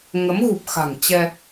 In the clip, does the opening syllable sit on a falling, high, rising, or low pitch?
rising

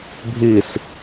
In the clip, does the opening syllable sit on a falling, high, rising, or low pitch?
falling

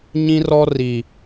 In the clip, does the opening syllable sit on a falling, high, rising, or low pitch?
high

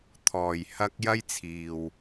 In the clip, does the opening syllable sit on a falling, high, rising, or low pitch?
low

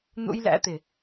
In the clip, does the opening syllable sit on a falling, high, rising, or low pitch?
high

